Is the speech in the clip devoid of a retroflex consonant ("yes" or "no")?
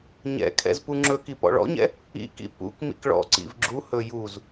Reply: no